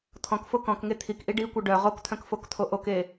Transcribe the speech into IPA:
t̪ʰ ɔ̃ k f o k ɔ̃ k ŋ e t̪ʰ i k ʔ i ɖ i kʷ œ ɖ œ ʁ o k t̪ʰ œ̃ k f o k t̪ʰ o ʔ o k e

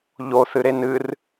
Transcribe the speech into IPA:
ʎ o θ ɨ ɾ e n ɨ r

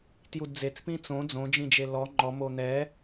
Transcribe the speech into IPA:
t j u d d͡z e t͡s p ĩ t͡s õ d͡z õ d͡ʒ ĩ d͡ʒ e l ɔ ŋ͡ǃ ɔ m o n̪ ɛ

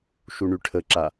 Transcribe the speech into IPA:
ʃ u ɳ y ʈʰ ə ǁ a

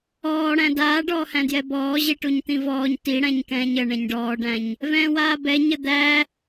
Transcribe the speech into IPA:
ɔː ɽ æ̃ d aː ɖ ɔː h æ̃ d j ɛ b ɔː ʑ i ʈ u ɲ t̪ ĩ v ɔː ɲ t i ɽ æ̃ ɲ k ɛ̃ː ɲ ə ɳ ɛ̃ ɲ ɖ ɔː ɖ æ̃ ɲ | v ɛ̃ː w aː b ɛ ɲ ə d̪ æ

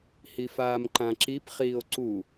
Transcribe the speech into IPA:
h i f aː m ǃ ã ǁ i p χ iː o̯ ǀ u

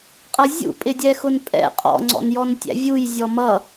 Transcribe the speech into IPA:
qʼ ʌ zʲ ṵ pʼ ɪ dʲ ɛ x ʊ n pʼ ɛ̰ qʼ ɔ̰ ŋ͡ǀ ɔ̰ n j ɔ n tʲ æ̰ vʲ u j zʲ ɔ m ʌ

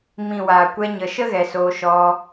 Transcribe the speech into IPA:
m ĩ˨ w aː˨ kʷ ɛ˧ ɲ ə˨ ʃ ə˦ ɣ ɛ˨ s oː˧ ʃ ɔ˧

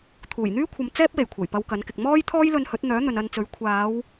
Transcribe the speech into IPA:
t̪ʰ uː˨˩ j n̪ yː˥ kʷʰ ɐ˨ m t͡s ɛː˥ p̚ w e˨˩ j kʷʰ ɐ˨˩ j p ɐ˧ w k ɐ˨˥ n k ɪ˨ k̚ m ɔː˥ j t̪ʰ ɔː˥ j l ɵ˧ n h ɵ˨˥ t̚ n̪ œː˨˥ n̪ ɵ˨ n ɐ˧ n t͡s ɵ˨˥ ɥ kʷʰ aː˨˧ w

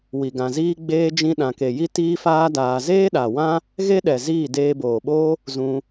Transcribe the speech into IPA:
w i˨ ɡ ã˨ z iː˦ ɡ͡b eː˧ d͡ʒ ĩ˧ ɗ ã˨ k e˨ j i˦ t iː˦ f aː˦ d aː˧ z eː˦ ɗ a˨ w ã˦ | ɣ e˦ ɗ ɛ˨ z iː˦˨ d eː˧ b oː˨ ɓ oː˦ | z ũ˧

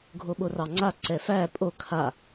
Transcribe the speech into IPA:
ɡʱ o ɓ o r ɑ ŋ͡ǀ a ǀ ɛ f æ pʼ o kʰ a

